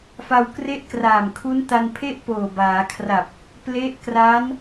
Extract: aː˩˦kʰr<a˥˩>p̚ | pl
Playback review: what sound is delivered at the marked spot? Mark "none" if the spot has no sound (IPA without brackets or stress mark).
a˨˩